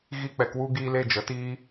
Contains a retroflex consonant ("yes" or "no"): no